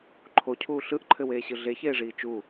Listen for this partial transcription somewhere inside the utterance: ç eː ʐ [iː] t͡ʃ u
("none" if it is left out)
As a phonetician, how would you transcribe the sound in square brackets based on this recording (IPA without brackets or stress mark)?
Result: iː